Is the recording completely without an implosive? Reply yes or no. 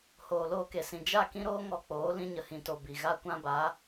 yes